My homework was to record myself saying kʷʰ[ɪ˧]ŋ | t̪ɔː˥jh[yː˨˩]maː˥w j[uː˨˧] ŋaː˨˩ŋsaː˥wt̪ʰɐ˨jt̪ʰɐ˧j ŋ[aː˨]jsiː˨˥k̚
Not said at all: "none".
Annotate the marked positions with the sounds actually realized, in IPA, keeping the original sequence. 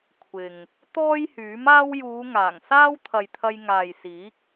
ɪ˨, yː˨˥, uː˨˧, aː˨

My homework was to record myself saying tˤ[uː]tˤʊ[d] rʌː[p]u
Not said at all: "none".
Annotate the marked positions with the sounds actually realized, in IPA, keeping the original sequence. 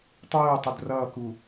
uː, d, k

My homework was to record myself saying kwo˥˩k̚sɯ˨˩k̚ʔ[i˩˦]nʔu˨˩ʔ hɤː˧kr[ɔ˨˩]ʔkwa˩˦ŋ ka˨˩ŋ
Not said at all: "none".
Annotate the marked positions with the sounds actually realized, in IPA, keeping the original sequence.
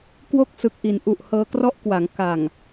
i˩˦, ɔ˥˩

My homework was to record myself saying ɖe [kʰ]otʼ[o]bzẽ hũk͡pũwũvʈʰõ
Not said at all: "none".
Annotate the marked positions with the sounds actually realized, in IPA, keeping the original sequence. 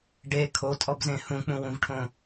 kʰ, ɔ

